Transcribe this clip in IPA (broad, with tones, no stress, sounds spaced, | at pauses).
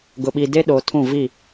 ɡ ʊ˨ ɓ i˨ d e˦ ɗ oː˨ tʰ ũ˦˨ v i˦˨